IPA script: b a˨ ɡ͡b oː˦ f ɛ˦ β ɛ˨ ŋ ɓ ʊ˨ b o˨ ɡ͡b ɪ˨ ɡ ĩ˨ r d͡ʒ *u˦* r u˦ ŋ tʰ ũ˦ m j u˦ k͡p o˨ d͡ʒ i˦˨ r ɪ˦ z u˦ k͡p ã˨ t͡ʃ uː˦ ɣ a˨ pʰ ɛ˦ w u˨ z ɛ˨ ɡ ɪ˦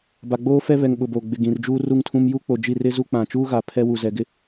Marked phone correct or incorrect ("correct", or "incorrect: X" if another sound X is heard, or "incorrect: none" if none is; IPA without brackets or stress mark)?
incorrect: uː˦